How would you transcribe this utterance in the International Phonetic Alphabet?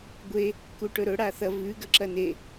ɡʷe | kuʈɵɾɵ ɽaθɐ vʉ ɡɐǁɐne

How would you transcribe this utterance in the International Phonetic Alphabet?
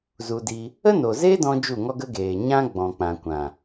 zu˧di˧ | ə˦no˨zeː˦ dɔ̃˦d͡ʒu˦˨ŋɔ˦ɡə˦ ɡeː˨ɲã˦ ɡ͡bɔ̃˨k͡pã˨ kʷã˨

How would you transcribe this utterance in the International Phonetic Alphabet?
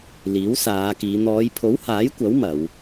liː˨˥wsaː˨˧kiː˨˧ n̪ɔː˨˧jpʰo˨˥whaː˨˥jkʷɐ˨˥w mɐ˨˧w

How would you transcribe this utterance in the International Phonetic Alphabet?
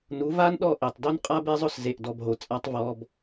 nu˨˦ va˦nɗɔ˦˨ʔe˨tˤ do˦nqʼa˦be˦zˤʊ˦s ze˨ʔdɔ˨b ɦo˨t͡sʼa˦tˤvɔ˦b

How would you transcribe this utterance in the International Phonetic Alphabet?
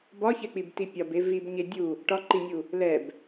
bɒçɛk͡pibti pʲɒbe vibɲe dʲu | ʈɒǃinʲu | lɛb

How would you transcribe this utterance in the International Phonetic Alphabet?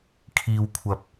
kʰiː˧wkʷʰɐ˧p̚

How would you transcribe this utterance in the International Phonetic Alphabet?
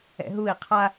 ɛ̰ɦui̯ qʰa

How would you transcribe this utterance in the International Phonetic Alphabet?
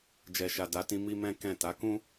d͡ʒɛ˨ʃa˨ da˨˦tĩ˧ mi˦mɛ̃˦kɛ̃˦˨ ta˨˦kũ˦

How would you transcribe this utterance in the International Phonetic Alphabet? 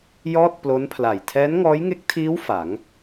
jɔː˥˩t̚plo˦˥npʰla˨˩j tʰɛː˦˥nŋɔː˦˥jŋe˦˥k̚tʰiː˦˥w fa˩˦ŋ

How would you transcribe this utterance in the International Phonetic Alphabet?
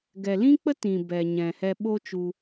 ɡɛ˨lĩ˦k͡pə˦ tĩ˨ bɛ˨ɲɛ̃˨ hɛ˧ɓo˦t͡ʃu˧

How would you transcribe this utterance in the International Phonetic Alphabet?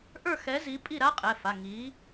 ʔə˞˥˨ xɛ˨˥ zi˨˥ pʼi˥˨ ɾa˥qʼɛ˩˧˩fa˩˧˩ ŋi˨˥

